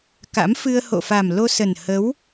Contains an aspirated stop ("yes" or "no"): no